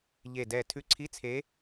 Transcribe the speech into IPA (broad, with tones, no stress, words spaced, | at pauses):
ʎe˧˩dɛ˧˩ tʰʉ˧˩ǀʰi˧˥˧ t͡sʰe˨˦